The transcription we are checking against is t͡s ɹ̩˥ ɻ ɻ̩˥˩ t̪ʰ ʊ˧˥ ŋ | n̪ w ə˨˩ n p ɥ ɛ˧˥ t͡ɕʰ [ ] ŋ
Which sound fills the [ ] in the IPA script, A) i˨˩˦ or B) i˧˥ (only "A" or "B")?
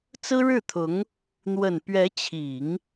A